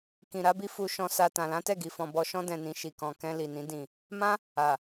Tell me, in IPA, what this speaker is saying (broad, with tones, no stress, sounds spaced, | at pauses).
k ĩ˨ ɾ a˨˦ b i˧ f u˧ ʃ ɔ̃˧ s a˨ t ã˨ l ã˨˦ t ɛ˦˨ ɡ i˨ f ɔ̃˨ b ɔ˧ ʃ ɔ̃˧ d ɛ̃˨ n ĩ˨ ʃ i˨ k ɔ̃˨ k ɛ̃˧ l i˨ n ĩ˨˦ d ĩ˦˨ | m ã˦ | a˨